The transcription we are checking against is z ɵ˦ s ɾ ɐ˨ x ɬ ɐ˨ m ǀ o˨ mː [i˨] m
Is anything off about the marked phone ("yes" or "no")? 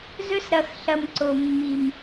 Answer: no